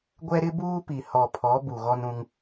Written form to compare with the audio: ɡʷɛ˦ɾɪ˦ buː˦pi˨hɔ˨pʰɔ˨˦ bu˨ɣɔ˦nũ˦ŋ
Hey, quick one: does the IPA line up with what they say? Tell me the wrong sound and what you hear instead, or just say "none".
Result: none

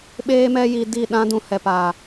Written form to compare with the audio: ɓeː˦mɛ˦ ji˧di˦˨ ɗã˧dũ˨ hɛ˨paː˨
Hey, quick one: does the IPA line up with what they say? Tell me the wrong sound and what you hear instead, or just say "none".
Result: none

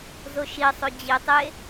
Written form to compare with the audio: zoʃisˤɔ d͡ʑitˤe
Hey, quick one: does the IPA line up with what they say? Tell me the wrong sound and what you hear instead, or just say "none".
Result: ɔ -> o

